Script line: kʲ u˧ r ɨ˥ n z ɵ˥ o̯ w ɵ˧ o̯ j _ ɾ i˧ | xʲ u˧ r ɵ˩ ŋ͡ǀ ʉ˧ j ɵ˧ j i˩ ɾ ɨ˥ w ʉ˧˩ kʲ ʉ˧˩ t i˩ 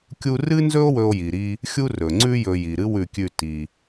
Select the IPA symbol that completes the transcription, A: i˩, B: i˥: A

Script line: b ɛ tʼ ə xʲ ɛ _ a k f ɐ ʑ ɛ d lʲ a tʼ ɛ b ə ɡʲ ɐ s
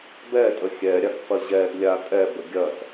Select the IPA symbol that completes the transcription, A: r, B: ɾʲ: B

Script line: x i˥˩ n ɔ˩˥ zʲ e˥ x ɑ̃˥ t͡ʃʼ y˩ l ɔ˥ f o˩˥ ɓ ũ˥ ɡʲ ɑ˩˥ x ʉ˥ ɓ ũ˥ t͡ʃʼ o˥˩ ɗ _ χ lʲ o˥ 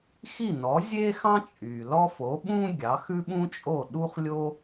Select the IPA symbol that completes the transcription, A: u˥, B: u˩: A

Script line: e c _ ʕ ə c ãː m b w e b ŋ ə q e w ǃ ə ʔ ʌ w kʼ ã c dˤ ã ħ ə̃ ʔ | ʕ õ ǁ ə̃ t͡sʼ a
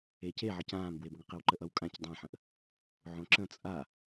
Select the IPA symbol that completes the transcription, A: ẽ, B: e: B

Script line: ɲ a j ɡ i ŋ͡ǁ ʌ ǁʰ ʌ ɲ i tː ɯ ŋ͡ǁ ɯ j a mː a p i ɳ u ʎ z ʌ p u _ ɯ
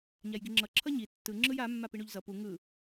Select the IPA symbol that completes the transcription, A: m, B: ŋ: B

